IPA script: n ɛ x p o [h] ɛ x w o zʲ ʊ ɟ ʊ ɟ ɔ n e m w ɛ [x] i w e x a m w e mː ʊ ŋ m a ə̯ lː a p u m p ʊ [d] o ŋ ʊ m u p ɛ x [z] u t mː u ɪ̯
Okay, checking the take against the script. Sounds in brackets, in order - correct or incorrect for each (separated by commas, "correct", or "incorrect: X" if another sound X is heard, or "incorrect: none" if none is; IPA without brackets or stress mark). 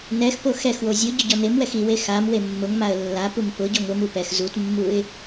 incorrect: x, correct, incorrect: ɟ, correct